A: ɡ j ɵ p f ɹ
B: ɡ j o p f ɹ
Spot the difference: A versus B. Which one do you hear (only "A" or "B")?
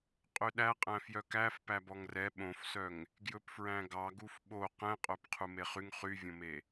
A